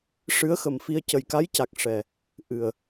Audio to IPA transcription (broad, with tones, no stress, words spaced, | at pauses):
ʂɨ˧˥ə̯xə˨˩mfi˧ə̯ cə˨˩jka˧˥jca˨˩k̚ ʂɛ˨˩ | ʔɨ˨˩ə̯